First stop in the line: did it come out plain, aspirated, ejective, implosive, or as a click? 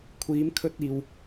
aspirated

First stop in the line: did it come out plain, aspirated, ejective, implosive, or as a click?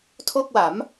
aspirated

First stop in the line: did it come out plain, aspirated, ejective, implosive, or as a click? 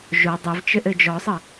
plain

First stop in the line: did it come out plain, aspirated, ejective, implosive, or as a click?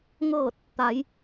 plain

